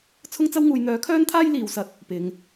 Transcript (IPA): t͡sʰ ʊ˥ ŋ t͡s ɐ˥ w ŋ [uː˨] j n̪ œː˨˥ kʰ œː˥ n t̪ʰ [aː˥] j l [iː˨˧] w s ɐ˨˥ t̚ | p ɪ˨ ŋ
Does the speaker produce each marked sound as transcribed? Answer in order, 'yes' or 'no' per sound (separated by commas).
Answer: yes, yes, yes